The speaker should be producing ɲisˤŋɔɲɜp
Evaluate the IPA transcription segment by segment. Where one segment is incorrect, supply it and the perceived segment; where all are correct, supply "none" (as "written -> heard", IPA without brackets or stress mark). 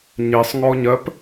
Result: none